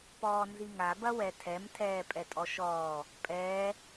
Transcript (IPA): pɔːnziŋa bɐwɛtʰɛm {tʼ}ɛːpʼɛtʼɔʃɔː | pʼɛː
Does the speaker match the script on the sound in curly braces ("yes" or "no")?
no